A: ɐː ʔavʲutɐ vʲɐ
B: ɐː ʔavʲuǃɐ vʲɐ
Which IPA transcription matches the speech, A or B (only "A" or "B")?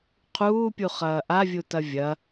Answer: A